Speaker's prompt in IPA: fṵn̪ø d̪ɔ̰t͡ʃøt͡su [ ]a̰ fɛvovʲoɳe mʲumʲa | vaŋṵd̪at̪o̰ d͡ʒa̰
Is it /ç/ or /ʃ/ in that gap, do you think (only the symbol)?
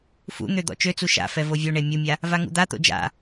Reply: ʃ